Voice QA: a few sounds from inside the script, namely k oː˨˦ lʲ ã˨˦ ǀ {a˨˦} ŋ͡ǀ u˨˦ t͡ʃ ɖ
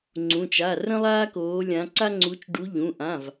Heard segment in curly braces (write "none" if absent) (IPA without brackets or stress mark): a˦